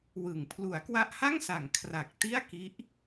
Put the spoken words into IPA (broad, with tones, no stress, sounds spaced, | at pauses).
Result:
w ɯ˨˩ ŋ pʰ l u˩˦ a̯ k w a˦˥ ʔ h a˥˩ ŋ s a˩˦ ŋ kʰ r a˨˩ k̚ t i˥˩ a̯ k i˦˥ ʔ